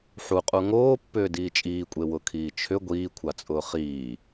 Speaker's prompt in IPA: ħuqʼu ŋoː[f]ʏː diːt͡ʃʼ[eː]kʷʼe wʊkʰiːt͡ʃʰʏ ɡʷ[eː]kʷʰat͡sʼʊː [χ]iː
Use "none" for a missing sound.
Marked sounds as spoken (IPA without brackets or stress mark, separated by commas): pː, iː, iː, χ